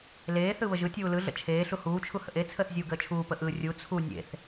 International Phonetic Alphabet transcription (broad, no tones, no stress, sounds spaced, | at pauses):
l eː θ ɯ β ə ʒ ɯ tʲ uː l ɯ ɮ ə̰ t͡ʃʰ eː ɬ u h uː t͡ʃʰ u h ə̰ ʔ e t͡sʰ əː θ zʲ uː ɡ əː t͡ʃʰ uː p ə ʔ ɯ rʲ u t͡sʰ u nʲ ḛ θ